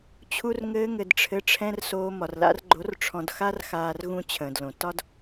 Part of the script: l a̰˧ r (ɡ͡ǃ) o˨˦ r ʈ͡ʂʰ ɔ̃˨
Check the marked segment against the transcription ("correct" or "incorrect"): correct